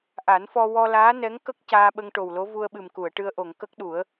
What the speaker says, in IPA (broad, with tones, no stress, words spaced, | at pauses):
ʔa˨˩˦nfɔ˧ wɔ˧laː˧˥nɛ˧˥ŋ kə˦˥k̚ caː˧ɓə˧ŋ ʈo˨˩wlo˧˥ vu˧ə̯ɓɨ˨˩mku˨˩˨ə̯ ʈɨ˧ə̯ʔo˨˩˨ŋ kə˦˥k̚ɗu˨˩˦ə̯